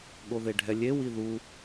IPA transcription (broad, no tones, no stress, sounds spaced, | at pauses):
ɠ o ð e ɖʱ ɛ lʲ e w i ð u